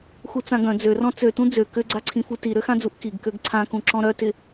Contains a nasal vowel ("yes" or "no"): yes